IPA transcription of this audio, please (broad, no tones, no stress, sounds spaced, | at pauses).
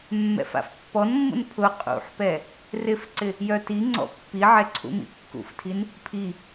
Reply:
mː ɛ̰ f a̰ f pː ɔ n mː ṵ n pʰ ʊ qʼ ṵ ħ p ɛ | r ɪ f ǀ ɪ | j œ t i ŋ͡ǀ ɔ̰ pː i ʕ ɛ ǀʰ ṵ m ḭ kː ṵ f tʰ i n | pʰ i